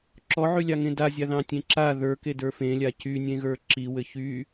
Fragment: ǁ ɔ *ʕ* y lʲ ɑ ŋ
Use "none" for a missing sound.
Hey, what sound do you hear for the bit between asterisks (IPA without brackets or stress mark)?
ʕ